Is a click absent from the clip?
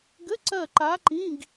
no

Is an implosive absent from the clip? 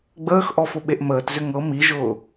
no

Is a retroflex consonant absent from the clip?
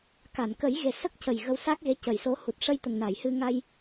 no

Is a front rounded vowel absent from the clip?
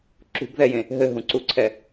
yes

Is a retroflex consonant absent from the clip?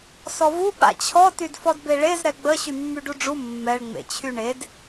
no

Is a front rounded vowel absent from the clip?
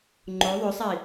no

